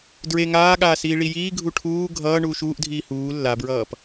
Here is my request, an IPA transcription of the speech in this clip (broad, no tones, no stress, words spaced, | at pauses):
dɹe ŋaːɠaː siːɭijiːɡʱu ʈʰuː ɡʱʌː ɳuːʃuːʔdʱiː huː lːabɹʌːp